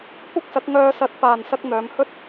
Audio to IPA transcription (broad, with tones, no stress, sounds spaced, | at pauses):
kʷ ɐ˥ k̚ s ɐ˨˥ k̚ ŋ œː˧ s ɐ˨˥ t̚ p aː˨ n s ɐ˧ k̚ n̪ œː˨˧ m h ɵ˥ t̚